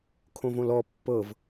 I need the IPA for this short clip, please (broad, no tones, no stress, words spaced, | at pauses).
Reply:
kʰõvõlɔ pːɤv